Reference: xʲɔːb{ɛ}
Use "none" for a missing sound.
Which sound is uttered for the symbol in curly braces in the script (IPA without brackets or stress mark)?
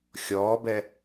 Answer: ɛ